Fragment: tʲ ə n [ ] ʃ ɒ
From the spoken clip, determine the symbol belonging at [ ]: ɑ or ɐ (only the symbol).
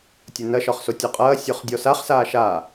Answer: ɐ